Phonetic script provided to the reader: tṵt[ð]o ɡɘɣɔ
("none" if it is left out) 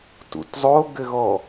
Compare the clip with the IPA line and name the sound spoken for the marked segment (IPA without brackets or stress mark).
zˤ